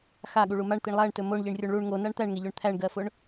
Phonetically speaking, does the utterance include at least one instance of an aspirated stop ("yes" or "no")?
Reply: yes